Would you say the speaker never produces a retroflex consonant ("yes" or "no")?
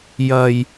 yes